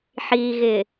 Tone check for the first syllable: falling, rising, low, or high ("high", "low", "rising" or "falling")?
low